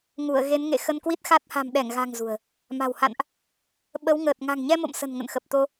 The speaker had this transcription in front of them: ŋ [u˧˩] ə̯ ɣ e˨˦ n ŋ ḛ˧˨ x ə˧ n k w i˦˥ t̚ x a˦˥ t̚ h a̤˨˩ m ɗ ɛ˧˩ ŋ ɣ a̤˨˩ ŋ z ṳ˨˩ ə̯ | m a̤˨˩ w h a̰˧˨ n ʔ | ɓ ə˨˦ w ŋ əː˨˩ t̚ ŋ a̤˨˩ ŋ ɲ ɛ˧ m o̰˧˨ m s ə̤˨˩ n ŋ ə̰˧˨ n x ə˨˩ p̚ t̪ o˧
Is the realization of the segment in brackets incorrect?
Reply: no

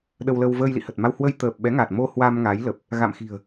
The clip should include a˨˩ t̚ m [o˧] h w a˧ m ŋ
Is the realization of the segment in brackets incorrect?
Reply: no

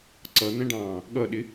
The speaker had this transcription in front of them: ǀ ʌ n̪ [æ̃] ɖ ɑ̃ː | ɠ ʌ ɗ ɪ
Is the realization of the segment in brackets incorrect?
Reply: no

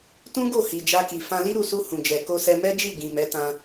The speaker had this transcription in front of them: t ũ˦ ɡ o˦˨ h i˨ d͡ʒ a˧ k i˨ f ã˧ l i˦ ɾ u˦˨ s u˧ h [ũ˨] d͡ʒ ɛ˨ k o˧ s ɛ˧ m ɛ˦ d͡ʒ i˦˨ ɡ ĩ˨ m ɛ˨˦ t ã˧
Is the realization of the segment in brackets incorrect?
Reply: no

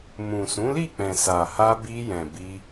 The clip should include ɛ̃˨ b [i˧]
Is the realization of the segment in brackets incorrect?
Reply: no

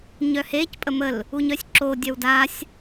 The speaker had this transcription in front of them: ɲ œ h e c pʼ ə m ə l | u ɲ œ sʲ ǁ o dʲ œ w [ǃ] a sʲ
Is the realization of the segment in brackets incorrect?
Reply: yes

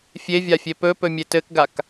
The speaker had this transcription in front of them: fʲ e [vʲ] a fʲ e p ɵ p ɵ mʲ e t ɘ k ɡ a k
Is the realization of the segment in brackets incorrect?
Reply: no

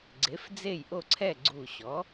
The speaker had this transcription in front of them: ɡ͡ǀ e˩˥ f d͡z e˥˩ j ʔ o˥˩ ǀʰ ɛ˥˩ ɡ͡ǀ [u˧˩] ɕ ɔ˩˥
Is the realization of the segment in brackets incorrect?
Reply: no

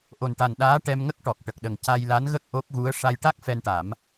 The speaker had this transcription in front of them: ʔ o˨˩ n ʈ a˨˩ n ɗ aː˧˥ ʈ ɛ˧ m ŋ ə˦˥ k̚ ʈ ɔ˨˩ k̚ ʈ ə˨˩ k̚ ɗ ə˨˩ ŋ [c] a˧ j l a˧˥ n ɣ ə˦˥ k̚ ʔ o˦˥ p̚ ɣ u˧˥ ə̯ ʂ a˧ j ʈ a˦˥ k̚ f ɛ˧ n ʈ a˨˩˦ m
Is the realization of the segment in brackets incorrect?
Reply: no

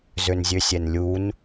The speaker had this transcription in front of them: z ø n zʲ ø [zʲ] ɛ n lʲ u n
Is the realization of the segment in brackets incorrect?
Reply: yes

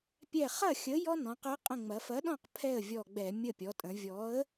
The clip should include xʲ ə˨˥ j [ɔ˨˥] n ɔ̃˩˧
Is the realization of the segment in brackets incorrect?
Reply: yes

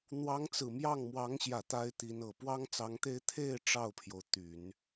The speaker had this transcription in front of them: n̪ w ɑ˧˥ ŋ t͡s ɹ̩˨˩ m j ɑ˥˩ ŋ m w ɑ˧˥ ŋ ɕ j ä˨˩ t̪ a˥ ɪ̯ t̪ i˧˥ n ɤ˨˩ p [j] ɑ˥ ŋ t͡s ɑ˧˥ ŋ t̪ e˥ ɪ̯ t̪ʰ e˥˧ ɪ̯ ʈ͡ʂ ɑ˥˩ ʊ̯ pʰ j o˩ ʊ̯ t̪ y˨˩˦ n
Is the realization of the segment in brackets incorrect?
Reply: yes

